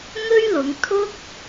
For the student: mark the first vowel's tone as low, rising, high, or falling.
high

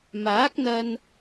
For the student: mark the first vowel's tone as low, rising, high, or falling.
rising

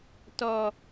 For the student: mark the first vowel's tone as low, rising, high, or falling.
low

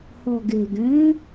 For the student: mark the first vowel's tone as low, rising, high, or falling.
low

